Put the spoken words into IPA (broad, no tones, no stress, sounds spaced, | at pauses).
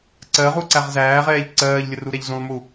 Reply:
ǀ ɜ ʁ u ǀ æ ʁ z æː ʁ ɛː ʎ ǀ ɜː ʎ lʲ ə r u ɾ ɛ ʎ z ũ lˠ m u